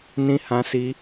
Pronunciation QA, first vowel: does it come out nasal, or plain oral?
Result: nasal